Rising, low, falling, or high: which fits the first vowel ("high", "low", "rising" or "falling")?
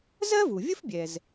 high